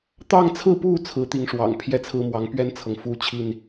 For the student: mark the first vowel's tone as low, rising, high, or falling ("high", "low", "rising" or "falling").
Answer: falling